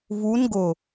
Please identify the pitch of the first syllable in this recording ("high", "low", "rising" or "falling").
rising